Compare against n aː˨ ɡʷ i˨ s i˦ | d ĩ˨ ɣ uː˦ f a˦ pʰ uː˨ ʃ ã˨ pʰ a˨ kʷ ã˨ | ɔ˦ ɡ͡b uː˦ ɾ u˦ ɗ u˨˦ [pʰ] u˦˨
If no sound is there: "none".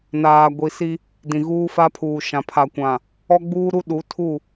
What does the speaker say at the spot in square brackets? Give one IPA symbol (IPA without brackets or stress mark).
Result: tʰ